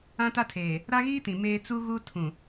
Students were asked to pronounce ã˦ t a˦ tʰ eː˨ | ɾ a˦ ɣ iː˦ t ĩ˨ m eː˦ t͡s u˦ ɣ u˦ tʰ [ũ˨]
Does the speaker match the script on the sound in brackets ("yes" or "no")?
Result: yes